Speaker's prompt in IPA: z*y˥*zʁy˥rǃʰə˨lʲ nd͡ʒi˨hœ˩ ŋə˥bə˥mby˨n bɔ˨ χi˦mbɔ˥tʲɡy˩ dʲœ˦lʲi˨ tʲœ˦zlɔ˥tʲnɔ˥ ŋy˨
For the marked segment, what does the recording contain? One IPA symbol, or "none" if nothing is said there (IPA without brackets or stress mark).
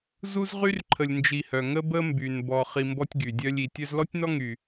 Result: u˥